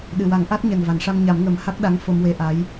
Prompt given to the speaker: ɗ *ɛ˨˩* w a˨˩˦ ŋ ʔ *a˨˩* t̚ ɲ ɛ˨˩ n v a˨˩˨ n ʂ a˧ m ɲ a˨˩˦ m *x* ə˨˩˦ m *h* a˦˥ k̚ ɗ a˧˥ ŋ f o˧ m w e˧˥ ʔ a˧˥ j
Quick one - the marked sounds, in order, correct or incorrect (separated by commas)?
incorrect, incorrect, incorrect, correct